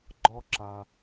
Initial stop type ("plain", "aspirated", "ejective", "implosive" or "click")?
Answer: click